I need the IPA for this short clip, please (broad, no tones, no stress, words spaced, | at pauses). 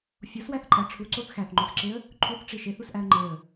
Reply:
fʲoswæθǃʼæ ʈ͡ʂʰuǀoθ xæθŋ͡ǃosǁeə̯ | ǃʰuθʈ͡ʂi ʃeθusʔæə̯ ŋ͡ǃeə̯